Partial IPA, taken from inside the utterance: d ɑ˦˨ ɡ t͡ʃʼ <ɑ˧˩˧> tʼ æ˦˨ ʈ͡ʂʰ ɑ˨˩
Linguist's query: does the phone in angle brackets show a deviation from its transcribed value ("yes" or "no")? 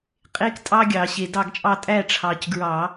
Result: yes